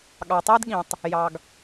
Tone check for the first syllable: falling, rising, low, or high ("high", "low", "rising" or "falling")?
low